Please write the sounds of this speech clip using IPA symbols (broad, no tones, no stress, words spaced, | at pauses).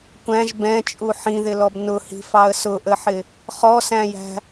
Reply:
kʷæ̃ʒ bɛ̃t͡ʃʼu ħĩðɪlɔb nʊhi̤fɑə̯ sʊʔəħɪ | χɔsæ̃jæ̤